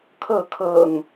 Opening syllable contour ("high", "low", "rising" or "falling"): falling